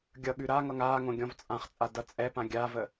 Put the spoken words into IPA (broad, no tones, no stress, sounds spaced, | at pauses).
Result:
ɡʲ ʌ ɠ ʉ ɾ a ŋ ʌ ŋ aː ŋ õ ɡʲ ɔ̃ v t͡sʼ ã χ t͡sʼ a d ʌ t͡sʼ ɛ p ã ɡʲ a v ə